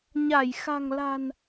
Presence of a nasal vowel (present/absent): absent